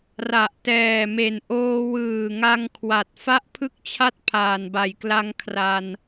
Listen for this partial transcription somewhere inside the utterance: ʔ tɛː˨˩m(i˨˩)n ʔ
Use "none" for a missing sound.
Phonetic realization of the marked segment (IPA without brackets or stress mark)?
e˨˩